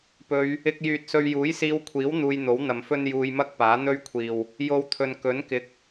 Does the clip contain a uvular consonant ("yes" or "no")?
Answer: no